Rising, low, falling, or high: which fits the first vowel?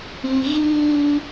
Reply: low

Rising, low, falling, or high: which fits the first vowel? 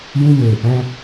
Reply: high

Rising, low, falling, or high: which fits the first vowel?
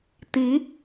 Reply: rising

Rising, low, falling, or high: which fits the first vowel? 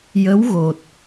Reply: rising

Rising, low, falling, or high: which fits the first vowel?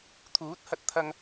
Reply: rising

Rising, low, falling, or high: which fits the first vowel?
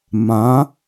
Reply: rising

